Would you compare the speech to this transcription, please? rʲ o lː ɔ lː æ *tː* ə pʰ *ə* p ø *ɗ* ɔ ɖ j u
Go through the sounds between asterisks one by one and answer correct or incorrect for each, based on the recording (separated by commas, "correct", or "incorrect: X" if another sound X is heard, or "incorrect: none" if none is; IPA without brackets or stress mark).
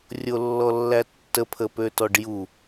correct, correct, incorrect: t